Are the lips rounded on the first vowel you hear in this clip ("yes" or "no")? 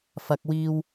no